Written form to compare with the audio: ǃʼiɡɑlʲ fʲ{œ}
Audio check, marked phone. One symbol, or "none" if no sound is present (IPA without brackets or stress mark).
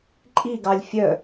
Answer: œ